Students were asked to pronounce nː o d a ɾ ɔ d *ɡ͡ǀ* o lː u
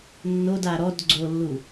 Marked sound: correct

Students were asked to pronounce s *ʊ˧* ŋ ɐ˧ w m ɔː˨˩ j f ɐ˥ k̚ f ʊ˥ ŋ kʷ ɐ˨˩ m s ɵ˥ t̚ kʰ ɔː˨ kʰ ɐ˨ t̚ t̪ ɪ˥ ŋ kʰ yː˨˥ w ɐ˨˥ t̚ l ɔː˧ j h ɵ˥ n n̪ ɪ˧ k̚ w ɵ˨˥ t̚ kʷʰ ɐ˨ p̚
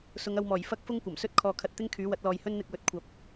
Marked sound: incorrect: ʊ˨˧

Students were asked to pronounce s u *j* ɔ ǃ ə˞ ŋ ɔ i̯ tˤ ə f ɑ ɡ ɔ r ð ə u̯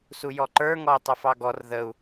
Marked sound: correct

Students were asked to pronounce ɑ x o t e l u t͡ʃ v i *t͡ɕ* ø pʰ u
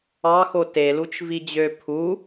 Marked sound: incorrect: d͡ʑ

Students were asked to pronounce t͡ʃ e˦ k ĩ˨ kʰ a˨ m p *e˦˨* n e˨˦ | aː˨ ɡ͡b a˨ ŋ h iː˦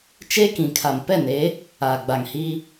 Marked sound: incorrect: ɛ˦˨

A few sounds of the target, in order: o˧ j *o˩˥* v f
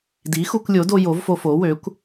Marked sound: correct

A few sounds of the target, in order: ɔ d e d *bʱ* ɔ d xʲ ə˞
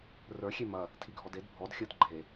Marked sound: correct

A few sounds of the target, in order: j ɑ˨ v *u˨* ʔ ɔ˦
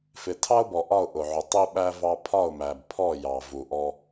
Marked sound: correct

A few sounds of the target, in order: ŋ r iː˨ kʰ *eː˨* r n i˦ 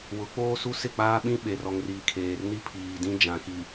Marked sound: correct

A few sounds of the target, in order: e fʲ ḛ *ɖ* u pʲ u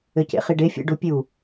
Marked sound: correct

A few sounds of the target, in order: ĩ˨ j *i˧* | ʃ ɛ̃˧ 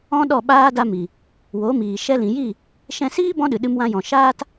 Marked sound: incorrect: i˦˨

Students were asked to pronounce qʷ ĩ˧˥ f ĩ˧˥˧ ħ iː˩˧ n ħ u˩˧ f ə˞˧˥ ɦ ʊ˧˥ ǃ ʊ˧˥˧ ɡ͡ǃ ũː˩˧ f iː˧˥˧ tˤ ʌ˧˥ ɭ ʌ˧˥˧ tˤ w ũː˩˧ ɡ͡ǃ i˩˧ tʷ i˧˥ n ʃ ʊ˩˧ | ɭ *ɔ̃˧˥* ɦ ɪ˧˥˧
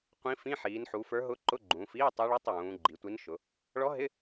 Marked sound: incorrect: ɔ˧˥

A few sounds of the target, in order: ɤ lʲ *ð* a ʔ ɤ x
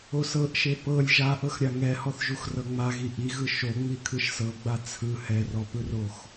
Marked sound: incorrect: ʒ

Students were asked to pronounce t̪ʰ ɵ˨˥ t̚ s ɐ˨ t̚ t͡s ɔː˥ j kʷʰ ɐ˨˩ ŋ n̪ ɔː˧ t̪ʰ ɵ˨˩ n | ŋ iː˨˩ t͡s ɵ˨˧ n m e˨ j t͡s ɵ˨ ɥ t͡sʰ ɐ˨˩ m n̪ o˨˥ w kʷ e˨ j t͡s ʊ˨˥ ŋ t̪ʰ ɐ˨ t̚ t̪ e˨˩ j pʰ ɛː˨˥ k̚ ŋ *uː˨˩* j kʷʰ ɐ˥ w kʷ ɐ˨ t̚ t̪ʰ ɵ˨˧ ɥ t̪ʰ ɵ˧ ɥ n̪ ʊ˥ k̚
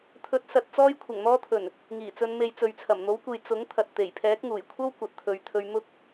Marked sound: correct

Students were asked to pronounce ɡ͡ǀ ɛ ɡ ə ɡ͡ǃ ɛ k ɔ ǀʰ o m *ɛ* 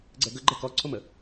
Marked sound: incorrect: ə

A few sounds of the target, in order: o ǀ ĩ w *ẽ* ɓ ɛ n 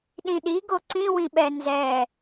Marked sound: incorrect: ĩ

